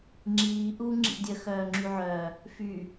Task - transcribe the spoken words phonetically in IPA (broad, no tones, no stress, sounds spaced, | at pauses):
ŋ͡ǁ iː ʔ uː ŋ͡ǁ ḭ dʲ ə x œː ŋ͡ǁ y ʕ œː | f y